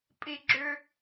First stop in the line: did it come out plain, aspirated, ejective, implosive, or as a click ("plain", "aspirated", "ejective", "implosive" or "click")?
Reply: ejective